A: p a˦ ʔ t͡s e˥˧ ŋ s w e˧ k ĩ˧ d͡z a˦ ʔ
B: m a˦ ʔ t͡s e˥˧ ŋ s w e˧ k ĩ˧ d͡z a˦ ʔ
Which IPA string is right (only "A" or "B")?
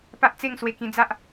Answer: A